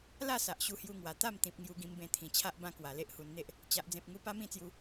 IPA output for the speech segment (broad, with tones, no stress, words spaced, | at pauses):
la˥˧sa˨ʔ ɕu˧hju˧ŋwa˨˩ t̪a˥˧mt̪ĩ˨p̚ ŋju˧ɡĩ˧mbẽ˧ t̪ʰĩ˨˩ t͡ɕʰa˦ʔbã˦kwa˨˩ le˦ʔhu˧nn̪e˦ʔ | t͡ɕa˦ʔd͡zẽ˦p̚ ŋu˧pa˦mĩ˥˧t͡sju˧